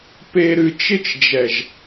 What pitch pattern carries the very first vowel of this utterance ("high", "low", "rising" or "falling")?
low